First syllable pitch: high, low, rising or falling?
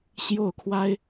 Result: falling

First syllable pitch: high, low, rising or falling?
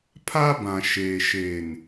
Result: high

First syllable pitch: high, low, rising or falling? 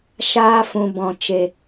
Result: high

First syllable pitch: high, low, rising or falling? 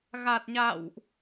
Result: low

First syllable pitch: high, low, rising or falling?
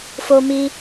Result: high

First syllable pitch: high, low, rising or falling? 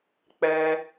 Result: high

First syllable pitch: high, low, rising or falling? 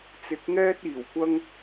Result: rising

